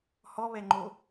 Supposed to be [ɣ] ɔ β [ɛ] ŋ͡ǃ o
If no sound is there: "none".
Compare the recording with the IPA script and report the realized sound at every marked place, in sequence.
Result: h, ɛ

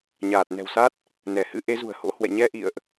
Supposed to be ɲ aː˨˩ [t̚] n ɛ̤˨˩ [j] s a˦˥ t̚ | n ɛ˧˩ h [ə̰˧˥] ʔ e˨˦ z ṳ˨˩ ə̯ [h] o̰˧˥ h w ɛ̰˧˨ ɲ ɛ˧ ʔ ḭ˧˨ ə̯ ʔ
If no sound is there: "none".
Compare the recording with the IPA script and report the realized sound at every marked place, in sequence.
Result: t̚, w, ɨ̰˧˥, h

